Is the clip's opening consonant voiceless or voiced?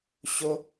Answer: voiceless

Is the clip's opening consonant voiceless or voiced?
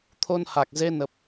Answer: voiceless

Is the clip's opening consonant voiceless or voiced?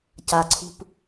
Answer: voiceless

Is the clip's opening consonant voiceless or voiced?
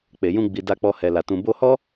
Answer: voiceless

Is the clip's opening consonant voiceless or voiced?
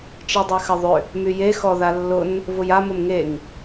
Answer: voiceless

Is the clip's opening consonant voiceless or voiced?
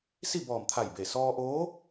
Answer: voiceless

